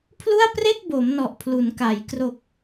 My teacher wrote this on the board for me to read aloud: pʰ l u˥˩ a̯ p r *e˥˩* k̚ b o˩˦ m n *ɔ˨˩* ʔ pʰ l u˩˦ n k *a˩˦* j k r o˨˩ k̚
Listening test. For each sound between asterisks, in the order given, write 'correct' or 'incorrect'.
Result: correct, correct, correct

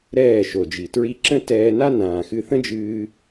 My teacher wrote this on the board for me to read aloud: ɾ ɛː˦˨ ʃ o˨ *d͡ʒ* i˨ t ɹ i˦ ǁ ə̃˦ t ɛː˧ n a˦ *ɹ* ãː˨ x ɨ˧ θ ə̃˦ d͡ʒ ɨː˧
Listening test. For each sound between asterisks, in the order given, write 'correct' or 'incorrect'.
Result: correct, incorrect: n

